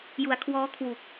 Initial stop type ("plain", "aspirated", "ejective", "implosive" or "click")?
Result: aspirated